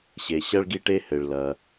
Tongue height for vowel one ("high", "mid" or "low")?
mid